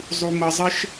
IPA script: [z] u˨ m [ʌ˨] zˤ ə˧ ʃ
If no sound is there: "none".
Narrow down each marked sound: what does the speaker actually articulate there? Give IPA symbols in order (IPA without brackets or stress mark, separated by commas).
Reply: zˤ, ʌ˨